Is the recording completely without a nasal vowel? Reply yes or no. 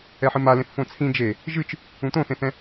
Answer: no